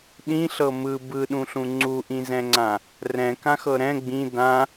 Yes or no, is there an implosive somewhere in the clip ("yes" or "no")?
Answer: yes